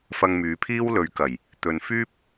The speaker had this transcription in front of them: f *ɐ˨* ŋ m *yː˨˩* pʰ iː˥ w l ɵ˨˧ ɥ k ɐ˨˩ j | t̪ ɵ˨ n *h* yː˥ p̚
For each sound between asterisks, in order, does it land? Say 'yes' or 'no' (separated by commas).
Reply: no, no, no